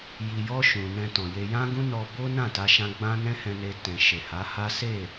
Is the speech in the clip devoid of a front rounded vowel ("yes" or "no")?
yes